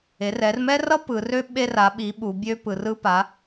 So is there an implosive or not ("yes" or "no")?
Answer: yes